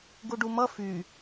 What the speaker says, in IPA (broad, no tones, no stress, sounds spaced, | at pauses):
ɡ u ɖ u m ʌ f y